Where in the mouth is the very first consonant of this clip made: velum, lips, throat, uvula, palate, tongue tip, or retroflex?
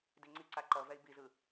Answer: tongue tip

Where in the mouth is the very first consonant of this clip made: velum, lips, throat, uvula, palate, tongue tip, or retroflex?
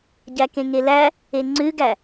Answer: palate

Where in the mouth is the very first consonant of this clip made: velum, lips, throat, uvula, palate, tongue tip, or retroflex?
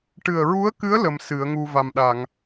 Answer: retroflex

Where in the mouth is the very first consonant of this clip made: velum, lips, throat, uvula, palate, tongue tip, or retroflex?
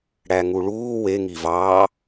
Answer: retroflex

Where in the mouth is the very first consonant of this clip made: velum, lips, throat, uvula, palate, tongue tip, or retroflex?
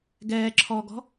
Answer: velum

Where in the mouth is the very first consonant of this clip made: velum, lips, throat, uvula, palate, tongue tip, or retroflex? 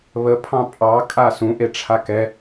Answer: lips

